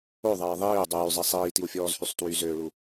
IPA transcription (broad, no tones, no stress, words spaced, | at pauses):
oðˤɛː ðˤiː dˤyːzˤɛ sˤiːtiwfʲɔːzhysˤ twyzøːɭu